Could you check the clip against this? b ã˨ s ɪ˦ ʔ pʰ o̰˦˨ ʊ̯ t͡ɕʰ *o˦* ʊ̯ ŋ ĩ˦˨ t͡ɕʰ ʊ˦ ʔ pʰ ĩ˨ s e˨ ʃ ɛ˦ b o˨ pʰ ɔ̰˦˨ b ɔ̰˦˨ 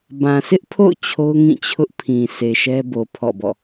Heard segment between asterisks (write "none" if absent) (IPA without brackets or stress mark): o˦